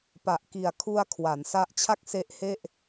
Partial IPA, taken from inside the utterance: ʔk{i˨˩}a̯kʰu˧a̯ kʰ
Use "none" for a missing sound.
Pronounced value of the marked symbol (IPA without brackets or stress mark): i˨˩